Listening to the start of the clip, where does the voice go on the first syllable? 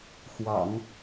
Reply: low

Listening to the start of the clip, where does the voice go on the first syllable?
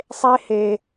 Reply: high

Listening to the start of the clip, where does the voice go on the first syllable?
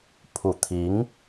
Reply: low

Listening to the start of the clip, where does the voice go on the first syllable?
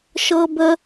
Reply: high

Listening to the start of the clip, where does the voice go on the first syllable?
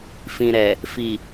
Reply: low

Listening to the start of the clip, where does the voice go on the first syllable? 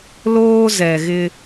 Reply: high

